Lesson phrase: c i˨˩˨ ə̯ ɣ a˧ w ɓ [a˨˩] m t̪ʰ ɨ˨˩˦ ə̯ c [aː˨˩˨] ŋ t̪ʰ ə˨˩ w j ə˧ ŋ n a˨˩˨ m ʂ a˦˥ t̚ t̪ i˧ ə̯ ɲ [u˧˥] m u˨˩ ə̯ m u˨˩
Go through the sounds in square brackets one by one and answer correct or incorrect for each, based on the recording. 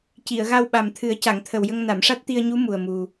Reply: correct, incorrect: a˨˩˨, correct

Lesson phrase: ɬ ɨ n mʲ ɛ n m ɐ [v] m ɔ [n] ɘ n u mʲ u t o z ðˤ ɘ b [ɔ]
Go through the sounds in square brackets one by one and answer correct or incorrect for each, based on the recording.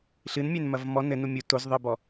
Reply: correct, correct, correct

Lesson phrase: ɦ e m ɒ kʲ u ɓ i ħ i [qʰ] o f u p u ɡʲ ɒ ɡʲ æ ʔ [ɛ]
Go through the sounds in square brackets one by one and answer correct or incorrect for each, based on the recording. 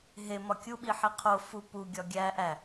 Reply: correct, incorrect: æ

